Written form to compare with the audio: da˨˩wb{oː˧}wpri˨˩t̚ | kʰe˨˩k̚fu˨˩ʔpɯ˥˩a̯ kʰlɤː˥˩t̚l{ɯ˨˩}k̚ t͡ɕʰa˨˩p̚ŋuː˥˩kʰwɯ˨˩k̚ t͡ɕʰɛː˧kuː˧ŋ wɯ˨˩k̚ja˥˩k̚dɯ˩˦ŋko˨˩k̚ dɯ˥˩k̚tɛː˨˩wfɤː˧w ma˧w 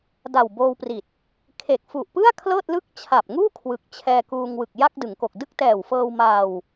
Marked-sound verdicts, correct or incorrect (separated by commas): correct, incorrect